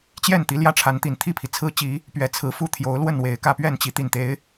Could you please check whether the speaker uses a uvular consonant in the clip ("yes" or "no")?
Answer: no